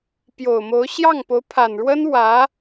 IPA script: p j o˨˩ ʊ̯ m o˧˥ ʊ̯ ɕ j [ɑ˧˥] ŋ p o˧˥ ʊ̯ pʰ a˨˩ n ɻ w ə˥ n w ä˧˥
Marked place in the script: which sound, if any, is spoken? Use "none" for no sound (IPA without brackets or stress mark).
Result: ɑ˥˩